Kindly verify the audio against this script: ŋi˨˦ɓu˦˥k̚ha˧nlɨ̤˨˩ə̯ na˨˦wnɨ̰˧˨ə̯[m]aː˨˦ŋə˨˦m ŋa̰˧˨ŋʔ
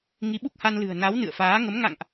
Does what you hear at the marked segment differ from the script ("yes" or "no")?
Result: yes